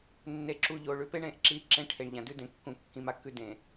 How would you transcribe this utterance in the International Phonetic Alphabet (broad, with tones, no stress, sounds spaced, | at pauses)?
nː e˨ ǁ u˨ ʎ o˨ ɭ ʉ˨ p e˦ ɳ ẽ˦˨ ʔ ǁ i˦˨ ǁ ẽ˦ ʈʰ e˨ ɳ ʎ ã˨ d ʉ˦ d ẽ˨ kː ũ˨ kː ĩ˨ m a˨ kː ʉ˨ d ẽ˨